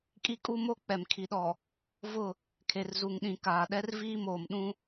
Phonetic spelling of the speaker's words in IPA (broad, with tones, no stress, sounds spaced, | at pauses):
kʼ i˦ kʼ u˦ m o˦ k͡p ɛ˨ m kʰ i˨ ɗ ɔ˨ | v ʊ˦˨ | kʰ e˨ r z u˨ ŋ ɗ ĩ˨ k aː˨ ɗ ɛ˦ r v iː˦ m oː˨ m ɗ ũ˦